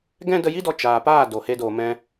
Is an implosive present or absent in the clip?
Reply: absent